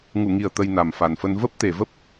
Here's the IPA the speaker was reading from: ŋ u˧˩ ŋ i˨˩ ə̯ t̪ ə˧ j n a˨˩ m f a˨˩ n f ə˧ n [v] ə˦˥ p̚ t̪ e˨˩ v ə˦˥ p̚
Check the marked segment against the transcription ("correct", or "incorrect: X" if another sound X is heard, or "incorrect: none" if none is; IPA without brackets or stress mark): correct